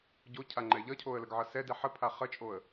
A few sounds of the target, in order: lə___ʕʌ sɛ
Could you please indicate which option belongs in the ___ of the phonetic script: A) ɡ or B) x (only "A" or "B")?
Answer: A